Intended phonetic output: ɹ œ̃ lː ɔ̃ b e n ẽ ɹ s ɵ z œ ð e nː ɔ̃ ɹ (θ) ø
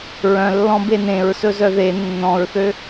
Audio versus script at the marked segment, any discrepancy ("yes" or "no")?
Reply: no